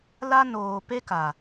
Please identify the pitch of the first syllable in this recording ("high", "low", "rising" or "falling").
high